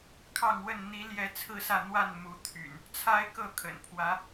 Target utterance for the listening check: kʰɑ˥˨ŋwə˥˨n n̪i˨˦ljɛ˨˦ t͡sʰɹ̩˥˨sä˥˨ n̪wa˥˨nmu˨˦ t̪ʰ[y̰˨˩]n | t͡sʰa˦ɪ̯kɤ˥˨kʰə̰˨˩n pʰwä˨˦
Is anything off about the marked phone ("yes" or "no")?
no